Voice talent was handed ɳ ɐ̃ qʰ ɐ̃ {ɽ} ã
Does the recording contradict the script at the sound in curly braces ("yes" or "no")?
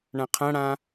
no